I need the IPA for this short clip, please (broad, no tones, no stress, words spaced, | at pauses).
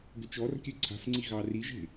ɡʏt͡ʃɔrkʲø ǀʰa̤fŋ͡ǀi ɣɑriʒe̤